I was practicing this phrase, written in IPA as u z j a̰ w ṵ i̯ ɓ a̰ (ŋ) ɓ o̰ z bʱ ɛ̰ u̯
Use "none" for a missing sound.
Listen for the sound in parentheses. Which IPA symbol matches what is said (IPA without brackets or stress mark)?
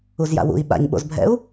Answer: ɲ